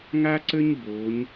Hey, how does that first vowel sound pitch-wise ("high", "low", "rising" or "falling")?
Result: high